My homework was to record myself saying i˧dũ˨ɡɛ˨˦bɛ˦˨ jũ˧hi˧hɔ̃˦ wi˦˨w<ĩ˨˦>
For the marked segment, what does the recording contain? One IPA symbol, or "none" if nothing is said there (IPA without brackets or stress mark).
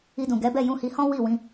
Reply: ĩ˧